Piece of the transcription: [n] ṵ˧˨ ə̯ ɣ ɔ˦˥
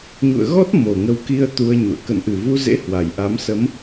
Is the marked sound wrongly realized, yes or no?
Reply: yes